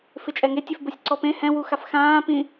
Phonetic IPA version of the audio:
f ɪ t͡ʃʼ ɛ ŋ e tʲ e f b o sʲ ǀ ɔ p ẽ h ɛ̃ w u x a f x ãː p ĩ

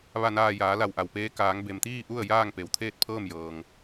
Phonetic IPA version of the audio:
ʋ a˧˩ n aː˧˩ j aː˩˧ l a˧˩ w ʔ a˩ w p eː˧ k aː˩˧ ŋ b e˩ m t̪ iː˥˨ ʔ u˥˨ ə̯ j aː˥˨ ŋ p e˩ w t̪ʰ eː˥˨ t̚ pʰ ɤː˥˨ m j ɤː˩ ŋ

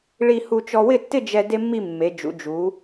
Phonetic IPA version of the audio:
ɭ i˧ h u˧ t͡ʃ ɔ˧ w ɪ˥˧ tː ɪ˥˧ d͡ʒ ɛ˧ d e˥ mː i˥˧ mː e˩˧ d͡ʒ ṵ˩˧ d͡ʒ u˩˧

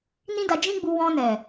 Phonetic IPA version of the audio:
n ĩ˦ d a˧ d͡ʒ ĩ˦ ɡ͡b u˧ w ɔ̃˧ n ɛ˨

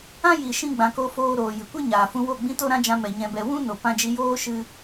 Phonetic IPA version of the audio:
ã˦ j i˨ ʃ ĩ˧ ɡ͡b ã˧ k o˦ f oː˦ ɾ oː˨ j ɨ˨ kʷ ɨ˦ ɲ aː˨ f ũ˧ w o˦˨ ɡ͡b ĩ˦ t o˦ ɾ ã˦ d͡ʒ ã˧ m ɛ˨ ɲ ɛ̃˧ b ɛ˧ w ũ˦ n o˨ p ã˧ d͡ʒ i˧ j oː˦ ʃ ɨ˧

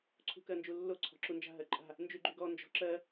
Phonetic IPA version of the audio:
ǀʰ ṳ k ɜ n d͡ʒ u lː o ǀʰ ɔ̤ ǁ u n d͡ʒ a̤ ɦ ɜ ǃʼ a̤ | n d͡ʒ y ɡ͡ǃ y ɡ ɔ n d͡ʒ ɔ̤ ǁ ɜ

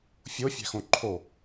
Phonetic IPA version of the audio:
fʲ o fʲ æ̤ x õ ǃʰ o

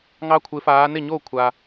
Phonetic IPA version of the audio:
ŋ ɑ˦ kʷʰ ɪ˨˦ f aː˨˦ n ɪ˥˩ ɲ oː˥˩ kʷʰ a˩

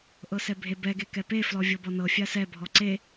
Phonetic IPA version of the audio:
ʔ ɤ s ɛ bʱ e b ɛ ɡ e k ɛ p e f l ɔ vʲ ɤ b ɔ n ɤ fʲ a s ɛ bʱ ɔ ǀ e

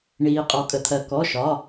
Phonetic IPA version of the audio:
ɳ iː˩ qʼ ɔ˩ kʼ ə˩ t̪ʰ ɜ˩ k ɔ˩˧˩ ʃ ɒ˩˧˩

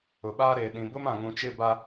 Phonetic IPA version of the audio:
ʊ˨ ɓ aː˦ ɾ eː˨ ɗ ĩ˨ b ʊ˦ m ã˨ ŋ ũ˨ t͡ʃ ɪ˦˨ b a˦

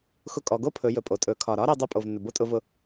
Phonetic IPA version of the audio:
x ʊ˧ kʼ ɔ˩˧ ɡ o˥ pʰ ɵ˩˧ j ɵ˩ pʼ o˩ tʼ ɵ˩˧ kʰ ɒ˩ ɾ ɒ˥ ɾ i˧ dˤ i˧ pʼ o˩ v nː ɵ˩ b o˥ tʼ ʊ˧ v ʊ˧

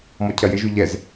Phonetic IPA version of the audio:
m ɔ cʰ ɐ j ɪ ʒ y ʎ ɛ z

